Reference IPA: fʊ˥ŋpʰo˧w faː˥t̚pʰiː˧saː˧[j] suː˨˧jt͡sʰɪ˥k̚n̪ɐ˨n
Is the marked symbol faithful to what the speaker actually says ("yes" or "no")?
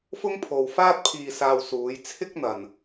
no